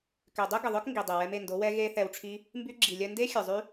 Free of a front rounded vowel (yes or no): no